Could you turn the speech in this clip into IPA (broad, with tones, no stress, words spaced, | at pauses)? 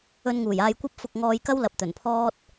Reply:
ɵ˧nŋuː˨˩jaː˧jkʷɐ˥p̚ fʊ˧k̚ŋɔː˧jkɐ˥wlɐ˨p̚ t̪ɵ˨˩npʰɔː˥t̚